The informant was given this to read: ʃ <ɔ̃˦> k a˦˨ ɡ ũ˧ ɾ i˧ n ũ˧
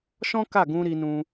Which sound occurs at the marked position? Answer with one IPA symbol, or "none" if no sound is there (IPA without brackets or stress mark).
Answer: ɔ̃˦